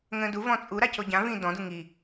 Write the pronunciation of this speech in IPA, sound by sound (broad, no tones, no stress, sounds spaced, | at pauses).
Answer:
ŋ ə̃ː d u v ɔ̃ t͡sʼ u ɾ a c o ɟ ã v ĩː d ɔ̃ d u ŋ i